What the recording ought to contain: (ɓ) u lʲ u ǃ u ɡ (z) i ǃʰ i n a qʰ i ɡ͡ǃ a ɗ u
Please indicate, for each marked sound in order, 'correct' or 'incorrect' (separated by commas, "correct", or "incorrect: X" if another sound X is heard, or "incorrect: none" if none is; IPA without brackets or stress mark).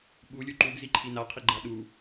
correct, correct